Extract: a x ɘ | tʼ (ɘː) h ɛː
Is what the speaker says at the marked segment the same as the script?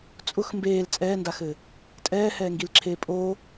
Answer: no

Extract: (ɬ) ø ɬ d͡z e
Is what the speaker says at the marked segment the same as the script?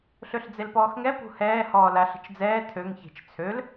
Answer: yes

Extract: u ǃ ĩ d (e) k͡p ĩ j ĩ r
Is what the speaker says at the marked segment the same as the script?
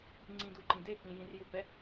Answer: yes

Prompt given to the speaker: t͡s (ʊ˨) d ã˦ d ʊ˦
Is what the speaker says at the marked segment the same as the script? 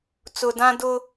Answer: yes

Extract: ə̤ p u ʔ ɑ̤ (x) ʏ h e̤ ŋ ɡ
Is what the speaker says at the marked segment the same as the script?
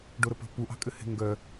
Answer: no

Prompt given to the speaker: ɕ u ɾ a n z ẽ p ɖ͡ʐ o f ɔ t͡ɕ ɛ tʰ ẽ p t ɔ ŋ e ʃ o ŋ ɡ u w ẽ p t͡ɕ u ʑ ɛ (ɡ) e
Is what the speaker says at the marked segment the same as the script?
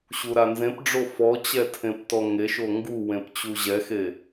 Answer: no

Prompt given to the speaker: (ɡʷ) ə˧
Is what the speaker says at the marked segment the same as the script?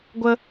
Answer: yes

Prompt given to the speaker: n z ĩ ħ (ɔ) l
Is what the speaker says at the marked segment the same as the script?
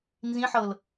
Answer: no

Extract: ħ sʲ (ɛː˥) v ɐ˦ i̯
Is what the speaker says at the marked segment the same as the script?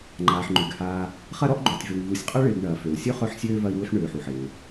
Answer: no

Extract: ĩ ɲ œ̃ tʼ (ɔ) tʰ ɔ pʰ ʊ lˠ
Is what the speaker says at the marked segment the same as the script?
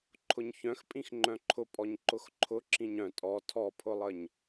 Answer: yes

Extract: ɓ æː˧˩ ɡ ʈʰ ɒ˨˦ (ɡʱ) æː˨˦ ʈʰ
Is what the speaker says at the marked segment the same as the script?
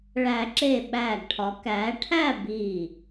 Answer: no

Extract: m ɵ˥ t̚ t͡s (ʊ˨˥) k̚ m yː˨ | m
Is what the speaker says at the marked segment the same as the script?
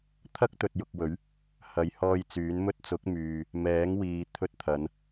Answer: yes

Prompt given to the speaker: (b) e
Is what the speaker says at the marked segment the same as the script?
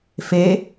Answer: no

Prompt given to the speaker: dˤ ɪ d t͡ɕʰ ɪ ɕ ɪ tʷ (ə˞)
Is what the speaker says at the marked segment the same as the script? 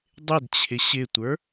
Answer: yes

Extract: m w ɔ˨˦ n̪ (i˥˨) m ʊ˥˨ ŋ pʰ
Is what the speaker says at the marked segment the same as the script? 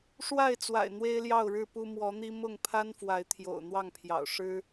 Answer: no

